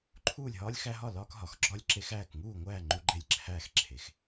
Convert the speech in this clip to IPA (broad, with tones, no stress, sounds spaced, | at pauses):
ǃʰ uː˥˩ lʲ ɦ ɒː˦ lʲ x æ˦ ɦ ɒ˥˩ l ɒː˦ k ɦ ɒ˩˧ x ɡ͡ǁ ɒ˥˩ lʲ ǁ e˦ x æː˥˩ k ŋ uː˥˩ ŋʷ æː˥˩ ŋ͡ǃ u˦ ɡ͡ǃ e˥˩ lʲ ǁʰ æː˥˩ x ǁʰ e˩˧ x